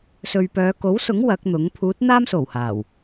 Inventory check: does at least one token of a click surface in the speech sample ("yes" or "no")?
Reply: no